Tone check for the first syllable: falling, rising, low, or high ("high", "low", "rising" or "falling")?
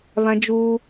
high